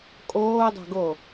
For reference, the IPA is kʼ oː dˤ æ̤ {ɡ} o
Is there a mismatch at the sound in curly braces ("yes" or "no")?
no